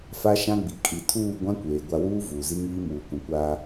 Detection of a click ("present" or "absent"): absent